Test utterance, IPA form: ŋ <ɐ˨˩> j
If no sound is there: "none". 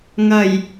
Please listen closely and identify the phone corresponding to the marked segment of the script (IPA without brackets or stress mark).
ɐ˨˩